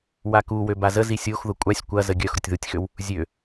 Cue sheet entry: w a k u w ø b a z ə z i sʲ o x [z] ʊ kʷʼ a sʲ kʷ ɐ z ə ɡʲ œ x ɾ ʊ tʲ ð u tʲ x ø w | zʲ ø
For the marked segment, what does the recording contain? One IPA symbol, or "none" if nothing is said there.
ð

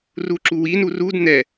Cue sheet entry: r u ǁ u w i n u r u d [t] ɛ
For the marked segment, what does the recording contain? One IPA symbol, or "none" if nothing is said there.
n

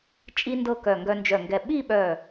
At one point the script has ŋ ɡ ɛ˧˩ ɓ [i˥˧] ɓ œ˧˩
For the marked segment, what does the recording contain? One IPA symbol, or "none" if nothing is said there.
i˥˧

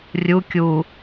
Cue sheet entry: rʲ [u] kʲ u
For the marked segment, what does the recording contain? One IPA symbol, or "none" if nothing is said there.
u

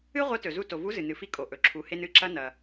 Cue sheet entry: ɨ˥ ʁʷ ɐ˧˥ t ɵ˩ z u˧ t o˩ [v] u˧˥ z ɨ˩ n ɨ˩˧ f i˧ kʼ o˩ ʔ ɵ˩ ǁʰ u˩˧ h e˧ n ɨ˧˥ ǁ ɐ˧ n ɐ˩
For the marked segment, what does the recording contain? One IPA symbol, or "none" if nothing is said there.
v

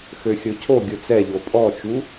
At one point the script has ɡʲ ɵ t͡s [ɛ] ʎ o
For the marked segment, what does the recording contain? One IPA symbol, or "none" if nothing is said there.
ɛ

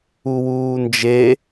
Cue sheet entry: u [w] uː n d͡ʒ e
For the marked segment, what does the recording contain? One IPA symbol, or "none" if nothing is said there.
w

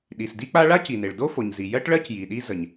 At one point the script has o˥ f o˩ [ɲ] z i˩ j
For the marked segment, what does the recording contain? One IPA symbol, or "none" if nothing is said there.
ɲ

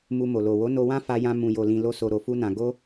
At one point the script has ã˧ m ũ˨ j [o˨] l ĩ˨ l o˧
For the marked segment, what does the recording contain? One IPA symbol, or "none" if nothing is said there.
o˨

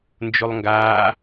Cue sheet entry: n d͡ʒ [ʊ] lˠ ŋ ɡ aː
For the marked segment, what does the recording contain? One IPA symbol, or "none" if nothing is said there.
ʊ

